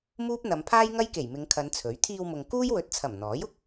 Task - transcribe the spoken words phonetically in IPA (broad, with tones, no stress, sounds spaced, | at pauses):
m uː˥ p̚ n̪ ɐ˨˧ m pʰ aː˥ j ŋ ɐ˥ j k e˨˩ j m ɪ˨˧ ŋ kʰ ɐ˨˧ n t͡sʰ ɵ˨˥ ɥ t̪ʰ iː˧ w m ʊ˨ ŋ k uː˥ j w ɵ˨˥ t̚ t͡sʰ ɐ˨˩ m n̪ ɔː˨˥ j ʊ˧ k̚